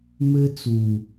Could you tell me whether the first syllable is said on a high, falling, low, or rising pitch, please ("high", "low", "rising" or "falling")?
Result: high